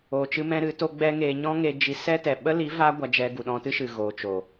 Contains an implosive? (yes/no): yes